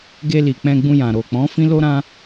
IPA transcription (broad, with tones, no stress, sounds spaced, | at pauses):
ɡ e˧ l i˨ k͡p ɛ̃˧ ɡ͡b ũ˧ j ã˨ ɾ o˨ k͡p ɔ̃˨˦ f ĩ˦ l o˦ ɾ ã˦